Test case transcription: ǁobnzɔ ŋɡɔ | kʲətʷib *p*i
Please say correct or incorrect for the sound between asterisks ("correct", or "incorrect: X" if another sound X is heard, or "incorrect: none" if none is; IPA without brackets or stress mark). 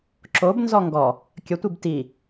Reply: incorrect: t